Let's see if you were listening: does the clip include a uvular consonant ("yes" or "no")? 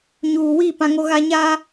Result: no